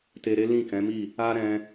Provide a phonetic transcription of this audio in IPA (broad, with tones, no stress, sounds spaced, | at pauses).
t e˧ ɾ e˦ l ĩ˦˨ k ɛ̃˨˦ m i˦˨ | a˦ ɾ ɛ̃˧